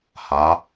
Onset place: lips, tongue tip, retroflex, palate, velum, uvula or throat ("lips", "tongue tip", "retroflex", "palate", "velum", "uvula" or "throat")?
throat